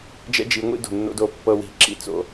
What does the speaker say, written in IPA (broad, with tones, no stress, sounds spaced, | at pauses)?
d͡ʒ ɛ̰˦ d͡ʒ i˨˦ ŋʷ ḭ˦ d o̤˨ nː o̰˦ d o˦˨ pː ɤ˦ w i̤˦˨ ǁ ḭ˦ t͡s o̰˦